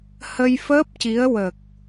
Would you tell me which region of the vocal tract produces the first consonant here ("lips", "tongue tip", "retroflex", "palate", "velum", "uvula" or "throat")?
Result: throat